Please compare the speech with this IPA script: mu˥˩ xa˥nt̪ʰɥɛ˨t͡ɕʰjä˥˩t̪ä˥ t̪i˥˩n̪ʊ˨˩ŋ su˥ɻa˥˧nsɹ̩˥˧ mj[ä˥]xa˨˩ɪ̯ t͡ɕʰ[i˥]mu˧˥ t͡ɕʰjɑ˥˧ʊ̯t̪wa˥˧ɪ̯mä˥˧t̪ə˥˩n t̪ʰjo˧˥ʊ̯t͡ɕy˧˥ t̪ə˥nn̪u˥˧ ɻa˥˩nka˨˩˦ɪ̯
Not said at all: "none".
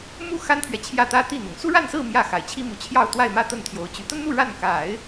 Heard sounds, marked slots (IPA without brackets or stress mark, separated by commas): ä˥˩, i˥